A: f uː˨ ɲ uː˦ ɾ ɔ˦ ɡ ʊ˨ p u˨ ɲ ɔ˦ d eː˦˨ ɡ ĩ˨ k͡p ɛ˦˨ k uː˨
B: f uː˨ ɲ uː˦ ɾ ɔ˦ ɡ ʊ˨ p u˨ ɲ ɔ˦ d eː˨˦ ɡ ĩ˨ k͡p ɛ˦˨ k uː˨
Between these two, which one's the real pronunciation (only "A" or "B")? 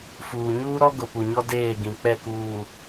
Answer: A